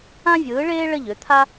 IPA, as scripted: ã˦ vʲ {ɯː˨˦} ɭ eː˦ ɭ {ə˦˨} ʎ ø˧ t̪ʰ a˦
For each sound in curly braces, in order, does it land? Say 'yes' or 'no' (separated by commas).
yes, yes